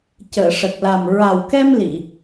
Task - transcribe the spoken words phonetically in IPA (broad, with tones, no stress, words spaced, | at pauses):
cəː˨˩˨ʂə˨˩k̚la˨˩m ɹa˨˩wkɛ˧m li˨˩˨